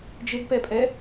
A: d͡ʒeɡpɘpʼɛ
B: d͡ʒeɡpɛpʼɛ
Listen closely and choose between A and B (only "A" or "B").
B